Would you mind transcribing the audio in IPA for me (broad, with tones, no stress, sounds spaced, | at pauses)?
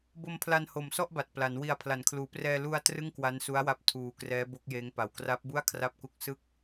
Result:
b o˧ m pʰ l a˧ n h o˨˩ m s ɔ˥˩ ʔ b a˨˩ t̚ p l a˩˦ n w i˨˩ a̯ pʰ l a˩˦ n kʰ l uː˩˦ p r ɛː˧ l u˧ a̯ t r ɯ˥˩ ŋ k w a˦˥ n s u˦˥ a̯ w a˦˥ p̚ tʰ uː˧ k r ɛː˦˥ b o˦˥ k̚ j eː˦˥ ŋ p a˨˩ w k r a˦˥ p̚ b u˥˩ a̯ kʰ r a˥˩ p̚ k u˥˩ k̚ s ɯ˥˩ k̚